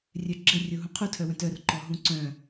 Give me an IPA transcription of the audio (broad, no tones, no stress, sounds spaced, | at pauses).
rʲ œ ɡ͡ǁ ɘ rʲ o ɦ ũ qʰ u tʰ œ w œ̃ t œ r ǃ ɔ ɦ ũ ǀ œ̃